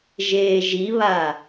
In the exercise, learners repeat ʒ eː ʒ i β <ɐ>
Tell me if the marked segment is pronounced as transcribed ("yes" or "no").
no